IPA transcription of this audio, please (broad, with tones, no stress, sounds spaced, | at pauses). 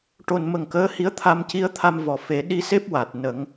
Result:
ʈ o˨˩ n m ə˨˩ ŋ k əː˧˥ h i˧˥ ə̯ t̪ʰ a˧ m c i˧˥ ə̯ t̪ʰ a˧ m v ɔ˨˩ f e˨˩˦ ɗ i˧ s e˦˥ p̚ w a˨˩ t̚ n ə˨˩˦ ŋ